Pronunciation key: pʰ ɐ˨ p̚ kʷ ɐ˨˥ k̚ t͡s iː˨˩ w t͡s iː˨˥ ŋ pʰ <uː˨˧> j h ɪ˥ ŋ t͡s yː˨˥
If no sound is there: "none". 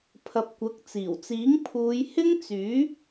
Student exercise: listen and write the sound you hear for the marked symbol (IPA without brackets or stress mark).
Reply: uː˨˧